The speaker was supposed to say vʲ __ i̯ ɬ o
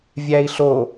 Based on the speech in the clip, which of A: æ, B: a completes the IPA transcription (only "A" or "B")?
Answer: A